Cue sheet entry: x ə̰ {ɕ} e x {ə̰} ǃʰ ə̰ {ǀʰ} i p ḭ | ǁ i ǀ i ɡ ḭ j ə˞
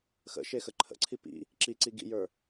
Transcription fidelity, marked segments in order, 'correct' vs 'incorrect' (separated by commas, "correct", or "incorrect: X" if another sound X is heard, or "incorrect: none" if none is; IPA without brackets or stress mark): incorrect: ʃ, incorrect: ə, correct